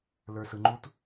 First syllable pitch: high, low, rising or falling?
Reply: low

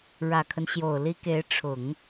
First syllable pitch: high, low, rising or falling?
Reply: low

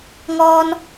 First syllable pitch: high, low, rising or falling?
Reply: high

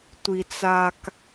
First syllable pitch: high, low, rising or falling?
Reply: low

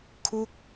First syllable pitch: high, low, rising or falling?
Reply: falling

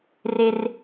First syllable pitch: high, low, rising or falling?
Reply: high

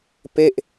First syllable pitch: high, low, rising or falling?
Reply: falling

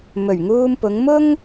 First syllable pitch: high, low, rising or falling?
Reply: low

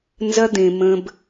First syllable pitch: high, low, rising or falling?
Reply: high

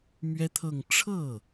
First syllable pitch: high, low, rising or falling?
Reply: high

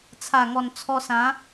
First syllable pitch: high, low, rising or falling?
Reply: low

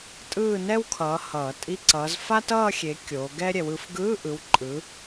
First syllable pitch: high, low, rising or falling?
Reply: falling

